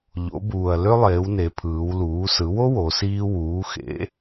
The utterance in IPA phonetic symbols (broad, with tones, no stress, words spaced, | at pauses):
ʎo̰˩˧buː˩ɐ̯ lø˦lˠeː˩˧w ne˩˧pʰɯː˩˧w luː˩˧sɯ˩˧wo˦ wo˩˧siː˦ wuː˩˧xḛ˩˧